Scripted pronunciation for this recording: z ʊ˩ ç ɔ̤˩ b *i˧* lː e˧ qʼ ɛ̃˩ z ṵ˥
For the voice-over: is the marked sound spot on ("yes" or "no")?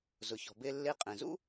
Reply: no